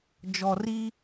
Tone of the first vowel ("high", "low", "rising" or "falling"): low